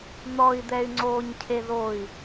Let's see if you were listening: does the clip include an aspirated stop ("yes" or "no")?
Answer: yes